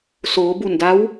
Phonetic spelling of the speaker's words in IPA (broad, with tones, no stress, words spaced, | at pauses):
soː˩˧ bu˧˩nda˧˥w